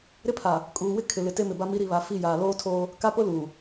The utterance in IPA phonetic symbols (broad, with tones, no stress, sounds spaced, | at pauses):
ɾ ɪ˦ pʰ a˨ | kʼ uː˨ w ɪ˦ kʰ ɪ˨ l ɪ˨ t e˦ m ɪ˨ b a˦ m i˦ ɾ i˨ β a˨ f i˦˨ j aː˨ l oː˦ tʰ oː˦ | k a˦ p ʊ˦ l uː˨